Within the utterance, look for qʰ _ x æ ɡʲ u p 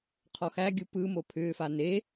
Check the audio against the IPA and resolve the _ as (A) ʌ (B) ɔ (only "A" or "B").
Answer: B